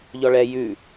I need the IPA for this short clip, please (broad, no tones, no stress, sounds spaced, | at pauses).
ʎ ɔ ɭ ɛ j ʉ